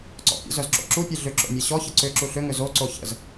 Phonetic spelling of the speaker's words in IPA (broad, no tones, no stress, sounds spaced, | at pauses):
ǀ ɔ̰ pʲ ɔ̰ z œ z ǁ o̰ ǁ u pʲ e ɮ ʏ ǁ o̰ mʲ e ɕ ɔ ç ə ǀ ʏ ǁ u ɬ ʏ ŋ ʏ z o ǀ o ç ə̰ z